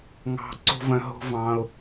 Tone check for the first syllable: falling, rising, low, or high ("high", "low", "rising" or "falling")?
high